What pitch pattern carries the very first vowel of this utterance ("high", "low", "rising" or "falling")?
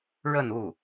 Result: falling